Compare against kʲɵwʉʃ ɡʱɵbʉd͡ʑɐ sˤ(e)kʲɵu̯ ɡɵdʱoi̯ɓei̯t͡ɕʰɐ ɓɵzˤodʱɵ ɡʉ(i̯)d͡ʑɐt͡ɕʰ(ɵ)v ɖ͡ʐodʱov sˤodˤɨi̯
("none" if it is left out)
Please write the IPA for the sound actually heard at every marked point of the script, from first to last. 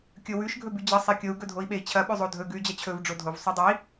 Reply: e, y̯, ɵ

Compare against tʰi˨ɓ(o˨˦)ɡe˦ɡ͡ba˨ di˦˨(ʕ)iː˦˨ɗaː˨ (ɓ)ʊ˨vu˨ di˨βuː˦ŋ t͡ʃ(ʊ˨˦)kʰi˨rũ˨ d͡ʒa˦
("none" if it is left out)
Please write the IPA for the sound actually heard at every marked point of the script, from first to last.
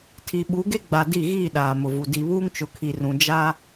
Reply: u˨˦, ɣ, m, ʊ˨

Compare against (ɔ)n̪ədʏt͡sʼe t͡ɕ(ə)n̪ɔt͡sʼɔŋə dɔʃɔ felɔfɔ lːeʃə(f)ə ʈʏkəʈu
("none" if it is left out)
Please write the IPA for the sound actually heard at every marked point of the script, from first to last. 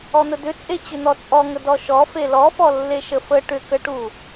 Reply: ɔ, ʏ, f

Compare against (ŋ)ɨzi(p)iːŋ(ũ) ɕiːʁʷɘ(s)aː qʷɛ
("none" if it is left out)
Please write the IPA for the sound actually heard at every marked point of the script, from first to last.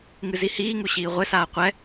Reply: ŋ, h, u, s

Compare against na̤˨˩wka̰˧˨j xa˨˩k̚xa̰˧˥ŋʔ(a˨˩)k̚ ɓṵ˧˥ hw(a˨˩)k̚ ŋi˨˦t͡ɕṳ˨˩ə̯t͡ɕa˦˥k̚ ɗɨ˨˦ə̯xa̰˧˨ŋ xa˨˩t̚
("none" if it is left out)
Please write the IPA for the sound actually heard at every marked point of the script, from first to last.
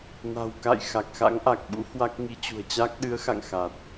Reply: a˨˩, a˦˥

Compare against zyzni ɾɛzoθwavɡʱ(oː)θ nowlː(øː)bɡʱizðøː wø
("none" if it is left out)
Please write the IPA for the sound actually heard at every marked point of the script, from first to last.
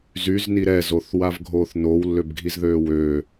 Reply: oː, ø

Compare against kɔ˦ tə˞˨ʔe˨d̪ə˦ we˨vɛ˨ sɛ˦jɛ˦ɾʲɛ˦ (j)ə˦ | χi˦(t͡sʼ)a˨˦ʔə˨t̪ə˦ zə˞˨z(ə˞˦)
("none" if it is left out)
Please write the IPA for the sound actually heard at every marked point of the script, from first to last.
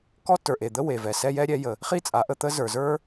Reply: j, t͡sʼ, ə˞˦

